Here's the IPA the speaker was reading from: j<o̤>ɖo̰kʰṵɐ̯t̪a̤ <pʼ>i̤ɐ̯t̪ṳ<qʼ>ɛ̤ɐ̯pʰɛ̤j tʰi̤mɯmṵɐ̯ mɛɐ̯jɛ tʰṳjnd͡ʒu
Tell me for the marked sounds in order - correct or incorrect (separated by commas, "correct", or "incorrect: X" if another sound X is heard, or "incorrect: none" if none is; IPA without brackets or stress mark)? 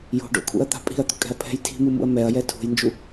correct, correct, incorrect: kʼ